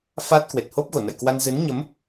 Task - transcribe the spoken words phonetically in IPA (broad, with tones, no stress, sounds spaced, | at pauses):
f a˦˥ t̚ k w e˨˩ t̚ h o˦˥ p̚ ɣ o˧˩ n ə̰˧˨ j k w a˧ n z ɨ˨˦ n ɲ ə˨˦ m